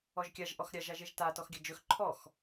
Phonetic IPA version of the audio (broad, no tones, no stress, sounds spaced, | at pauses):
ɔ ʒ kʲ a ʒ ʔ ɔ x ɾʲ a ʒ a ʒ e ʒ t a t ɔ x ɡʲ ɐ d͡ʒ ɵ x ǃʰ ɔ x